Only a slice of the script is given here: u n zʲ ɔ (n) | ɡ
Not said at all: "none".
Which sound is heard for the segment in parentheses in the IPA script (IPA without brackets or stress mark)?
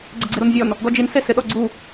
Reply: n